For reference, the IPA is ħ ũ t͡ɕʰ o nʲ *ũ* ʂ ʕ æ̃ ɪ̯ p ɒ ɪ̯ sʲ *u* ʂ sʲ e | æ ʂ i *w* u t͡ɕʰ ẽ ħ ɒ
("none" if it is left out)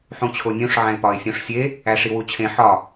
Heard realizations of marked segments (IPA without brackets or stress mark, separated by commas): ũ, ũ, w